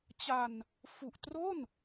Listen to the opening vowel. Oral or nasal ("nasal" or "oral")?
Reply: oral